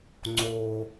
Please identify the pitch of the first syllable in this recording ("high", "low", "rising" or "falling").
low